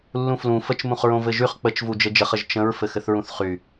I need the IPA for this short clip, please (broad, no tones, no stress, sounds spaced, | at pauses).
lː ũ f l ũ f ə t͡ʃ m ũ χ ɹ õ v ɘ ʒ y χ k͡p ə t͡ʃ v u d͡ʒ ɘ d͡ʒ ə χ ə ʒ t͡ʃ ə̃ ɹ f ɘ x ɘ θ ɹ ũ θ χ y